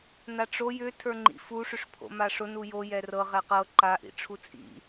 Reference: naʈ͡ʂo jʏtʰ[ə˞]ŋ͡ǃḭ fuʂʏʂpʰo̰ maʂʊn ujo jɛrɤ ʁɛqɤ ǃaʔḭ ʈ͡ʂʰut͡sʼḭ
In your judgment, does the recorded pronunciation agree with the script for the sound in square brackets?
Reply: yes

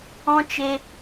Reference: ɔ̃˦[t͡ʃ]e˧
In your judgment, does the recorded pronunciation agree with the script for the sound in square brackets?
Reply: yes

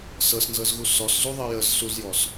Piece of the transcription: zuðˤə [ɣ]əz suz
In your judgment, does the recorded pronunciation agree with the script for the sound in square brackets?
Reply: no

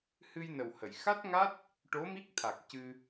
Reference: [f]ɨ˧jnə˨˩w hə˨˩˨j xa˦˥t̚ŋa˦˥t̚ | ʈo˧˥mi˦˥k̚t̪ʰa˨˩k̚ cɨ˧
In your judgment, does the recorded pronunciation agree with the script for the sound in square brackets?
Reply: no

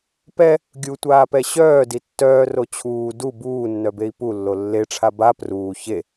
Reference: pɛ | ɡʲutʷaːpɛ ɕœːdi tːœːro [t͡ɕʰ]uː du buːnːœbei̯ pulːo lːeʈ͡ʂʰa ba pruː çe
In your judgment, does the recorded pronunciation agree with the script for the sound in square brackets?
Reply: yes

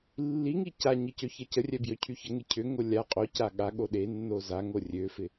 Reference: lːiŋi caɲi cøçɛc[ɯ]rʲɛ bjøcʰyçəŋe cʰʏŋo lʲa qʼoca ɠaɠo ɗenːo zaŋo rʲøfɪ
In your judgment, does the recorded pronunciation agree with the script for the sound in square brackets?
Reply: no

